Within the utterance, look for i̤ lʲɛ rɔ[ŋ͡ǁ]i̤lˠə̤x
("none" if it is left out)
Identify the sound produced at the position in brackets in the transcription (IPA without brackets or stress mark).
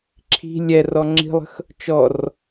ŋ͡ǁ